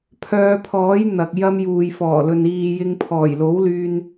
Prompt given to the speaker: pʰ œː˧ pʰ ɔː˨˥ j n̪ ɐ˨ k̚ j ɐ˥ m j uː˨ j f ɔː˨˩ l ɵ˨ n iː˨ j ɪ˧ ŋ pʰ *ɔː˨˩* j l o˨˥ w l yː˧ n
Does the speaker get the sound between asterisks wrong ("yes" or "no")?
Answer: no